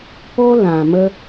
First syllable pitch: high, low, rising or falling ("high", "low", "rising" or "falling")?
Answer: high